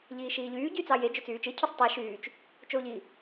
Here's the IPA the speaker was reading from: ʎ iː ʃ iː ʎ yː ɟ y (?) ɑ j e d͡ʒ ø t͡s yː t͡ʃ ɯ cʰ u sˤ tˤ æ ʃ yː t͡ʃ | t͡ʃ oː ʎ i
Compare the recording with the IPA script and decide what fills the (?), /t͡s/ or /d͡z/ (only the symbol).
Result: t͡s